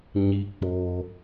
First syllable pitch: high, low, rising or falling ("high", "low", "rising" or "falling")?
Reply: high